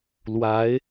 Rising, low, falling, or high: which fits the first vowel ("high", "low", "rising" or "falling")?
rising